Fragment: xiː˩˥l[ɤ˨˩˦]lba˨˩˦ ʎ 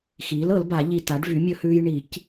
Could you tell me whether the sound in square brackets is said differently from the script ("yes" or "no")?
no